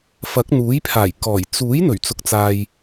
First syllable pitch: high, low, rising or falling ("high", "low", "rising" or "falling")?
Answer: rising